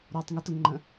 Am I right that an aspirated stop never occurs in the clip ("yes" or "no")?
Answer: yes